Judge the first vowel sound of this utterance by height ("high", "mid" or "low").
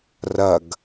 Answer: low